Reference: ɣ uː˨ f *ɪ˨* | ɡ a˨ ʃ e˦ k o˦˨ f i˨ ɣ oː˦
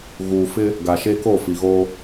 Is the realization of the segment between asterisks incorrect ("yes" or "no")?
yes